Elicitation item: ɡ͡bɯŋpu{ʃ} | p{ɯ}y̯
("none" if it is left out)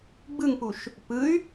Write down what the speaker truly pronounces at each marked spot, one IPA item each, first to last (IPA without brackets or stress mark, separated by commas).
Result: ʃ, ɯ